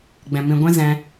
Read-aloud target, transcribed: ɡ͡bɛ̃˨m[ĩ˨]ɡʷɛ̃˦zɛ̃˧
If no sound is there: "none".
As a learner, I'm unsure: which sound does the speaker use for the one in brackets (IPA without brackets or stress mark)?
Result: ĩ˨